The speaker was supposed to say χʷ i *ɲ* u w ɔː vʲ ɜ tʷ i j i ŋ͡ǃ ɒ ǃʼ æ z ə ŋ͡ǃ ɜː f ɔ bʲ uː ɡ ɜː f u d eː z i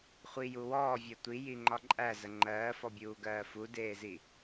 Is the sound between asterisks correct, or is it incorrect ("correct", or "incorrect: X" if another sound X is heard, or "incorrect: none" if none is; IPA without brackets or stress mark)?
incorrect: j